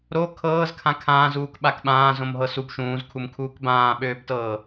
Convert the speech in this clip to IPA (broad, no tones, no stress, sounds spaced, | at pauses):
ɾ o kʰ ɤː z kʰ ã kʰ ãː z uː k ɓ a k ɓ ãː z õ m ɦ ɤ s u b ʃ ũː z kʰ u m kʰ uː k b ãː ɓ øː b t ɤː